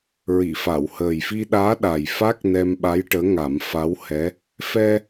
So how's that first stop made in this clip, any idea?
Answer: implosive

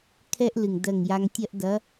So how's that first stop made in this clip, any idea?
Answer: aspirated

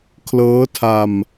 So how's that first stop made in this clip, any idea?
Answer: aspirated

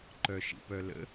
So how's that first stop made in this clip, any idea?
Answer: click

